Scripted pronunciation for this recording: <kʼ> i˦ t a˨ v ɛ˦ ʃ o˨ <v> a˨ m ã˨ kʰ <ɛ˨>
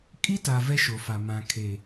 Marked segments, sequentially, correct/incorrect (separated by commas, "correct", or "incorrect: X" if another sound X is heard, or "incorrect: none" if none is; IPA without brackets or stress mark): correct, incorrect: f, incorrect: e˨